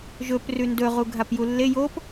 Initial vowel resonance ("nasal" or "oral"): oral